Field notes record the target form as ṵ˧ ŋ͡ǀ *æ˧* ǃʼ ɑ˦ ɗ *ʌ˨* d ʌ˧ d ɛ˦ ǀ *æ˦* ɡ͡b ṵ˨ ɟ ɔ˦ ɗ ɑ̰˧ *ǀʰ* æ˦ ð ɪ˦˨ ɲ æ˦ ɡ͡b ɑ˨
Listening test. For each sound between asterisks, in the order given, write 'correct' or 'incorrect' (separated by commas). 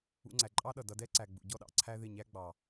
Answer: incorrect, correct, incorrect, correct